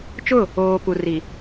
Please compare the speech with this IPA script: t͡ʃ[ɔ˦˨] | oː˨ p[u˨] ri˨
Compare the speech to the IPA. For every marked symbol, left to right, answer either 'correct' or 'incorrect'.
incorrect: ʊ˦˨, correct

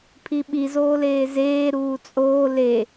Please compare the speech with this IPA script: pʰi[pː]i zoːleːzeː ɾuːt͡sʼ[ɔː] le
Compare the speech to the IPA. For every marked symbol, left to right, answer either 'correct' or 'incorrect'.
incorrect: ɓ, incorrect: oː

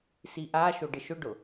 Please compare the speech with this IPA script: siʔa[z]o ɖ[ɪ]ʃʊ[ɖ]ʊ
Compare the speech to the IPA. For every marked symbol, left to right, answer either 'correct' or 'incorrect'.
incorrect: ʃ, correct, correct

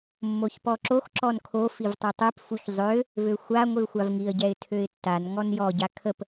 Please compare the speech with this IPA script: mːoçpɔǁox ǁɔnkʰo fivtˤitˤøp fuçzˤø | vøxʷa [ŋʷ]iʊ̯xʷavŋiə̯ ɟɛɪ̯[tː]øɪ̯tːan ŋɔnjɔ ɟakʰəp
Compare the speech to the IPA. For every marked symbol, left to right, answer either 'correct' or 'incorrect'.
correct, incorrect: tʰ

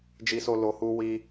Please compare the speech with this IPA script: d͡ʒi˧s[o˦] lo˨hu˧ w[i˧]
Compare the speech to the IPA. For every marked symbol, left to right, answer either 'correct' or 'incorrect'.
incorrect: o˧, correct

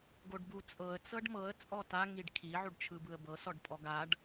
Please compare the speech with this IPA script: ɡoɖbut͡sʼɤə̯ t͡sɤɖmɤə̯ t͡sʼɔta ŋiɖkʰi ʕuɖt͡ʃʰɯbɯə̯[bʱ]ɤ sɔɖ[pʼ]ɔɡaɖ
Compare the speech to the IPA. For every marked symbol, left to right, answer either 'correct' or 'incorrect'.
incorrect: b, correct

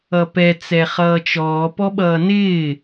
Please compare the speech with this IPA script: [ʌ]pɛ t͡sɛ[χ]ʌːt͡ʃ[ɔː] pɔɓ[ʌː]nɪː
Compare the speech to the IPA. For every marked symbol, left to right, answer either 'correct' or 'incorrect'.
correct, correct, correct, correct

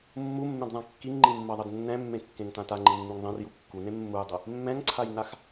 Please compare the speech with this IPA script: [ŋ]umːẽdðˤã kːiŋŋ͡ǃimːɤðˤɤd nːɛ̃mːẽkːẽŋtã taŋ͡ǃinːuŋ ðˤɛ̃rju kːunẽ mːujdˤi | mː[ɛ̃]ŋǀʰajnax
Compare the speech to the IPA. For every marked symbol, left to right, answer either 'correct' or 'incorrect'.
incorrect: mː, correct

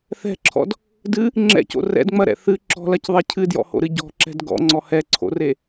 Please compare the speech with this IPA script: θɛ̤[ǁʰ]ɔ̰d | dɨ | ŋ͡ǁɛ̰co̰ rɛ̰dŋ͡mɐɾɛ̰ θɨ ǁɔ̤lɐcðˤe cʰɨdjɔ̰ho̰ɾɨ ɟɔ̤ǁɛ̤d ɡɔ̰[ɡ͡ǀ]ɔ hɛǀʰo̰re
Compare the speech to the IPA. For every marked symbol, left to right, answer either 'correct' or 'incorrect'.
correct, incorrect: ŋ͡ǀ

